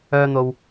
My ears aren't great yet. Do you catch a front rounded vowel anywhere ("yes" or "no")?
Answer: yes